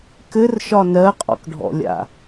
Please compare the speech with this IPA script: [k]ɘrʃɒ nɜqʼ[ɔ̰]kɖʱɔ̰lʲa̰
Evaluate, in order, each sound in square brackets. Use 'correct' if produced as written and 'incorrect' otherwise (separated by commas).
correct, correct